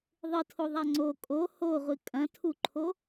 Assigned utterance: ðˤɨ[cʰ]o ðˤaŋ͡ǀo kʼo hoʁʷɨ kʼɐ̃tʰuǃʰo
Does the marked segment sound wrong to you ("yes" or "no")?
yes